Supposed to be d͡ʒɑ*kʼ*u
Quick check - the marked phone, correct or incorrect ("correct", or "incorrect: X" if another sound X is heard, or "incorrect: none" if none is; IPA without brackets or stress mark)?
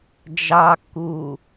incorrect: kː